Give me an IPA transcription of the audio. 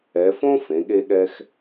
ɛ˩˧ f õ˥ f ẽ˩˧ ɠ e˧ ɠ ɛ˧ x

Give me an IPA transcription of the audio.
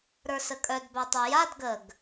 ɾ ə˞ s ə kʼ œ d b œ tˤ œ j a d ɡ ə ɡ

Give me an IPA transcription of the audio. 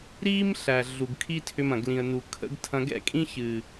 ɾ iː˦ m ɬ æ˨ ɮ u˨ ɡ kʰ i˦ tʰ ʏ˧ m ɐ̃˨ ɡ l ĩ˨ ə̯ n u˨ kʰ ə̰˦ ɡ tʰ ɐ̃˧ ɡ ɛ̰˦ kʼ ĩ˦ ç ɨ˨

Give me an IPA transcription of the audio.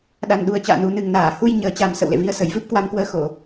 ɗ a˨˩ n ɗ u˨˩ ə̯ t͡ɕ a̰ː˧˨ n u˨˩ n ɨ˨˩ ŋ n aː˧˩ h u˧ j ɲ əː˨˩ t͡ɕ a˨˩ m s ə̰˧˨ w l ḛ˧˨ v i˧ ə̯ s ə˨˩ j v ɨ˦˥ p̚ k w a˧ m k w əː˧ x o˧˩˨

